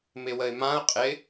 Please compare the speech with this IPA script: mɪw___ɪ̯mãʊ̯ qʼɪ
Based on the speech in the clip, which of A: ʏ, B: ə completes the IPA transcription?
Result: B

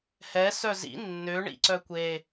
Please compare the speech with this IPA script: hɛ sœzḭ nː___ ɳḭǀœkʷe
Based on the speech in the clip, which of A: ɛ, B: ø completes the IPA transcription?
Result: B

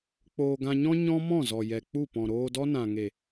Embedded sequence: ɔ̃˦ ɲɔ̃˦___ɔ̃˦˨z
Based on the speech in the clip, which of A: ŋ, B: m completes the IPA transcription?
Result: B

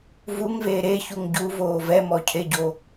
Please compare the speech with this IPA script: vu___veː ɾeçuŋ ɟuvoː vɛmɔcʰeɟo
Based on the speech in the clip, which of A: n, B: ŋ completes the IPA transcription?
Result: B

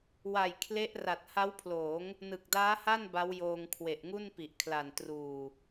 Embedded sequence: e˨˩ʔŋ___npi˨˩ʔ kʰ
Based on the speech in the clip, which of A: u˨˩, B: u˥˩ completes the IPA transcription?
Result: B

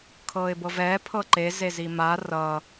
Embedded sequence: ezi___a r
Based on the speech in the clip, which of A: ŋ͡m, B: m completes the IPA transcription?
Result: B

